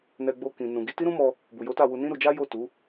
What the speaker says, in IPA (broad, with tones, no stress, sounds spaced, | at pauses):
n ɛ˧ ɡ͡b o˧ k ĩ˨ n ũ˨ ɡ i˧ t i˦ ɾ ũ˦ m ɔ˧ | b u˨ j o˨˦ t a˦˨ w u˧ n ĩ˦ ɾ u˧ d͡ʒ a˦ j o˦˨ t u˨˦